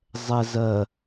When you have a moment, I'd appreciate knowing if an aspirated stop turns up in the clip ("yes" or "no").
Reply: no